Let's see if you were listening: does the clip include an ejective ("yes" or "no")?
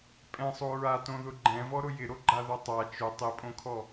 yes